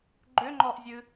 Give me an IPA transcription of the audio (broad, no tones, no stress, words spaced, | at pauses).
ɡ͡ǃʏŋ͡ǃɔʔzʲɨ